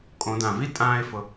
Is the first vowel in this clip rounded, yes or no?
yes